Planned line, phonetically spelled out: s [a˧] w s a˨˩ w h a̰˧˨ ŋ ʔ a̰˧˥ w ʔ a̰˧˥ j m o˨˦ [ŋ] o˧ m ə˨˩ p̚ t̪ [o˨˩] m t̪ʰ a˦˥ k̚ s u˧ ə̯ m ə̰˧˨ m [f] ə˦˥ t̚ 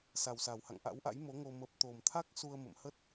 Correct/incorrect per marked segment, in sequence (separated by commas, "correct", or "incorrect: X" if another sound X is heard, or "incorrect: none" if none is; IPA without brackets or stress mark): incorrect: a˨˩, correct, correct, incorrect: h